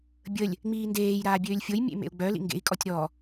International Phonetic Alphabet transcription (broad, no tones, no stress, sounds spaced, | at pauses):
bʲ ə lʲ | ŋ͡m iː n d eː j ɾ aː bʲ øː lʲ fʲ o j mʲ ḛ m ḛ u̯ ɡ͡b œ l ḭ ŋ ɡ ḛ i̯ kʼ ɔ tʲ ɾ ɔ